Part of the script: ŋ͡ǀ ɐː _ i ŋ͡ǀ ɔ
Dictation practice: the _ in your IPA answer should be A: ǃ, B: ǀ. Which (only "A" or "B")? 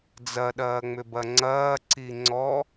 B